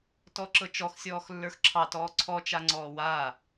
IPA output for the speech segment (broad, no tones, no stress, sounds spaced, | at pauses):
t ɔ ǁ ɤ t͡ʃ ɔ x sʲ ɔː x lː ə˞ x ǁʰ ɑ t ɔː ǀʰ ɔ t͡ʃ a ŋ͡ǀ ɔː w aː